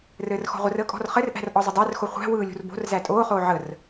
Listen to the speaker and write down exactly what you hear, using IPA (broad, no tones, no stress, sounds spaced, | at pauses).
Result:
r ɘː r x ɔ̤ ʁʷ ə r əː kʼ ɔ̤ r χ ɘ r ʔ æ̤ r ʔ ɔ zˤ ə dˤ æ r x o χʷ æ̤ w ɯː lʲ ṳ r b o̤ r z æ tʼ oː χ oː ʕ ə r